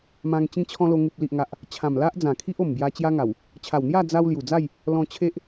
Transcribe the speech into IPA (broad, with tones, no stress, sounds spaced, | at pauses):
m ã˧ ŋ t͡ɕ ĩ˧ t͡ɕʰ ɔ̃˧ l o˧ ŋ u˨ p̚ l i˨ ʔ ŋ a˨ ʔ | t͡ɕʰ ã˨˩ m l a˦ ʔ d͡z ã˨˩ kʰ i˦ ʔ o˨˩ m b j a˧ t͡ɕ j a˦ ŋ a˨˩ w | t͡ɕʰ a˨˩ w n̪ j a˥˧ d͡z a˧ w l j u˨˩ d͡z a˥˧ j | l ɔ̃˧ t͡ɕʰ e˦ ʔ